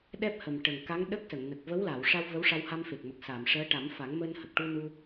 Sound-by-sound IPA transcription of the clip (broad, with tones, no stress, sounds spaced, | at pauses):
ɗ ɛ˦˥ p̚ h ə˨˩ m ʈ ə˨˩ ŋ k a˧˥ ŋ ɗ ə˦˥ k̚ s ə˨˩˨ ŋ n ə˨˩ k̚ v ə˧˥ w l a˨˩˨ w ʂ a˧ w v ə˧˥ w ʂ a˧ w h a˧ m f e˨˩ k̚ m ə˨˩ k̚ s a˨˩˨ m ʂ əː˧˥ ʈ a˨˩˦ m f a˨˩˦ ŋ m əː˧ n h ə˨˩ k̚ ʈ u˧ n u˧